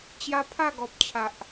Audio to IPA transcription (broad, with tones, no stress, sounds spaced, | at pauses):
t͡ɕ j a˦ pʰ a˥˧ ɡ ɔ˨ p̚ t͡ɕʰ a˨ ʔ